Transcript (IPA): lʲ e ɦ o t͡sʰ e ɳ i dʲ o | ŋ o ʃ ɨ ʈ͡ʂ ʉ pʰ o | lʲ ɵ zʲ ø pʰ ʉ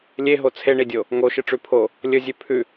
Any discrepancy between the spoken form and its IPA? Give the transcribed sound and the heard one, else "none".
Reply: ø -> ʉ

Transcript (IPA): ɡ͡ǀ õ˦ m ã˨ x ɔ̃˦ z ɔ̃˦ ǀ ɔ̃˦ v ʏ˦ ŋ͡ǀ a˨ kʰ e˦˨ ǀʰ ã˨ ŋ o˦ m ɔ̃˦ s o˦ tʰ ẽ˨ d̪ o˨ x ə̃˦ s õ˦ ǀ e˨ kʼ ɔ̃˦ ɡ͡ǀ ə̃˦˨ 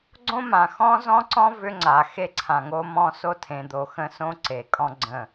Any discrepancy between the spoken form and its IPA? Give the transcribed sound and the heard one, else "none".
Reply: kʰ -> x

